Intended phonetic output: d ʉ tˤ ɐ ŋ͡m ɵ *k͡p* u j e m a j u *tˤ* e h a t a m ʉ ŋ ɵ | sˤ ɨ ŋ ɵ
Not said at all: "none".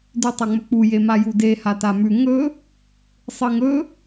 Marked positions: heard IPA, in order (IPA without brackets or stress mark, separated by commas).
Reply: k͡p, d